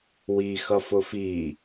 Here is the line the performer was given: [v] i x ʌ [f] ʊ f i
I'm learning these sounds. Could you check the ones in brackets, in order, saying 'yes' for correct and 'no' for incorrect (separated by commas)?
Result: no, yes